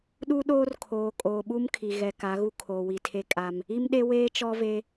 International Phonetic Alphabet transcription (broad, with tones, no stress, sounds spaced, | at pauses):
ɗ u˦ ɗ oː˦ r kʰ oː˨ kʼ oː˨ ɓ u˦ m kʰ i˨ ɣ ɛ˨ k a˨˦ ɣ u˦ kʰ oː˨ w i˨ tʰ e˦ kʼ a˦ m | i˦ m ɗ e˦ w eː˦ t͡ʃ ɔ˦ v e˦